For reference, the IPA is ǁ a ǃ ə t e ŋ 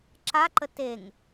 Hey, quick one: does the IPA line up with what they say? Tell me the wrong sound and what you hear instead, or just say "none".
none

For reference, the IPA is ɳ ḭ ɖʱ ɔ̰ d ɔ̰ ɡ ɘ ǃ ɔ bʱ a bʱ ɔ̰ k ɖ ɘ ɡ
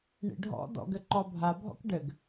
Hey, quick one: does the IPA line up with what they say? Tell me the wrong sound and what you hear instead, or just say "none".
none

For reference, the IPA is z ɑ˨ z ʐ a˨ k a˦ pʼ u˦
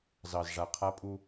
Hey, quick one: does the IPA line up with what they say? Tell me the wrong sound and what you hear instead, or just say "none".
k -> qʰ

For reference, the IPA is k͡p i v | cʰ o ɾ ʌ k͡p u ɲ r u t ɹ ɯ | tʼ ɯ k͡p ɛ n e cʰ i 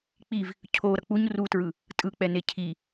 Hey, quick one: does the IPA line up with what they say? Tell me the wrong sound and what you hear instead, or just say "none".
none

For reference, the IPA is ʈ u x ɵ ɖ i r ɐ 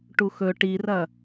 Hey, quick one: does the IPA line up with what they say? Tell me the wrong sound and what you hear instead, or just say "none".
ɖ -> ʈ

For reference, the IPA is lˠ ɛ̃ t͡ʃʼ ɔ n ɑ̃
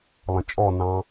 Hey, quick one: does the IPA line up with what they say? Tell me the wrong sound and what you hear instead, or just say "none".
none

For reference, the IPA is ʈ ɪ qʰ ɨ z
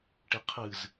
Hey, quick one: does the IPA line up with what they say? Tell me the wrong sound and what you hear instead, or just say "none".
none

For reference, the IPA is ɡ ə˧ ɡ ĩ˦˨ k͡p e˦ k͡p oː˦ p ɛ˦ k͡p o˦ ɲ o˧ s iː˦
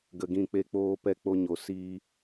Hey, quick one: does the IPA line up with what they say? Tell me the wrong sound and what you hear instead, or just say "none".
none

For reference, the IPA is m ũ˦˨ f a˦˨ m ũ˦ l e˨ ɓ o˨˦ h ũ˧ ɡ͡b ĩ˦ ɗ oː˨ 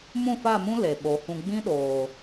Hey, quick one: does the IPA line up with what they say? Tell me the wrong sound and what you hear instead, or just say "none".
none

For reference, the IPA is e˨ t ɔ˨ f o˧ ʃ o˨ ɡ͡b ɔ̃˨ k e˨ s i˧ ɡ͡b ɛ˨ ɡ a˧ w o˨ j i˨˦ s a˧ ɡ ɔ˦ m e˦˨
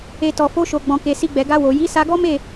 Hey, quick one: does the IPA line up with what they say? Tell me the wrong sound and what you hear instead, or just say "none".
none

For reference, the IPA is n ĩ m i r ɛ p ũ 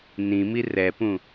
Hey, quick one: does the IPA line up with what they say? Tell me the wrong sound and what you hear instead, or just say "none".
none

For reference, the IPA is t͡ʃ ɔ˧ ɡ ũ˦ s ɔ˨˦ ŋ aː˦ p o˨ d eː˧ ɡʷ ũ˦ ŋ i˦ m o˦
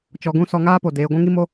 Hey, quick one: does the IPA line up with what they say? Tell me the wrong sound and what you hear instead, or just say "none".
none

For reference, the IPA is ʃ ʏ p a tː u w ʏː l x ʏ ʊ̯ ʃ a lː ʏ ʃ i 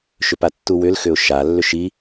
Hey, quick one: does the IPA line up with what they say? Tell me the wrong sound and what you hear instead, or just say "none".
ʏː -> ʏ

